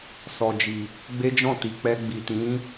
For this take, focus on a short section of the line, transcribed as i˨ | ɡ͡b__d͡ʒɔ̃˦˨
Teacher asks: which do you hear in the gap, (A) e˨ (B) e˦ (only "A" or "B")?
B